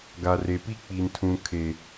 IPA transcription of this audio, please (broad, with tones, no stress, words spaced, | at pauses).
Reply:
ɡa˨re˨pi˦ k͡pi˨ntʰũ˨kʰe˨